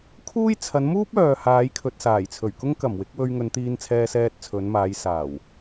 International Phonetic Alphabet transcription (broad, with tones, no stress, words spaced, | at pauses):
kʰuː˥j t͡sʰɐ˨˧nmuː˥p̚œː˨ haː˨˧jkʰɵ˨t̚saː˨˩jt͡sʰɵ˨˩ɥ kʊ˥ŋkɐ˨˩mwɪ˨˥k̚wɵ˧ɥ ŋɵ˨˧nt̪iː˧nt͡sʰɛː˧sɛː˧t̚ t͡sʰɵ˨˧nmaː˨˧jsaː˨˩w